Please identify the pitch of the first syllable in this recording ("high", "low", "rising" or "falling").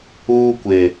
high